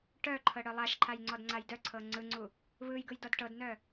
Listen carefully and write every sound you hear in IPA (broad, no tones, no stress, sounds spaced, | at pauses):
ʈ œ ǃʰ ɤ ɽ œ lˠ a ʃ ǃʰ a j ŋ͡ǀ ɔ d ŋ͡ǀ a j d œ ǀʰ ɤ ŋ͡ǀ ɯ ŋ͡ǀ u | β ɯ j ɡ ɯ j d ɔ d ʈ ɤ d n œ